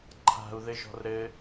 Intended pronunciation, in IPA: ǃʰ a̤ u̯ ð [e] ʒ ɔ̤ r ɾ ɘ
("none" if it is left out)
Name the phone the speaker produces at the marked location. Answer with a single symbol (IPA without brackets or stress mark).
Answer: ɘ